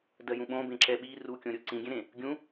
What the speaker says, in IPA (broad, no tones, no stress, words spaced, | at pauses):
dɜjũɓõbẽ ǁɛɓi rukʲõɾʲo ǀĩɡʲɛ̃ɾẽ | ɡʲũ